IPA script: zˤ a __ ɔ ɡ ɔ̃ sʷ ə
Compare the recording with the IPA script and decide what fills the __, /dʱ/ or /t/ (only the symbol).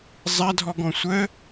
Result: dʱ